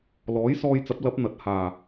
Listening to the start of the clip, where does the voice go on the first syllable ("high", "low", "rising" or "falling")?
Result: rising